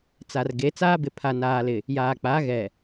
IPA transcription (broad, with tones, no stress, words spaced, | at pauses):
t͡sa˨rɡe˨˦ t͡saː˦bɪ˨ pʰa˨naː˨lɪ˨ | jaː˨k͡pa˨˦ ɣɛ˨